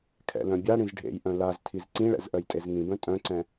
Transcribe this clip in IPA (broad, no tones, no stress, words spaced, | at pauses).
kʰɛ̰lœ̃bʲaɽĩz ɖʱḛjʔœ̃ laz tʰizǀĩɭɛ̰z ʔœjtʼezŋĩbœ̃ tʼœ̃ǀɛ̃